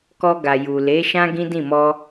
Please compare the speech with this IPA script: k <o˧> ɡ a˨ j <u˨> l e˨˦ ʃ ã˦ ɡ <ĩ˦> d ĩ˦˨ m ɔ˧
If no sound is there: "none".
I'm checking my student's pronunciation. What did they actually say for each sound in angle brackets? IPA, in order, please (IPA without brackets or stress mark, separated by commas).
ɔ˧, u˨, ĩ˦